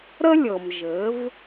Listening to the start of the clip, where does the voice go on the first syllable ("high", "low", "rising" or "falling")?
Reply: high